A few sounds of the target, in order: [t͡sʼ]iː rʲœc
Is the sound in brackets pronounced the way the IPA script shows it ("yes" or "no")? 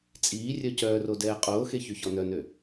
yes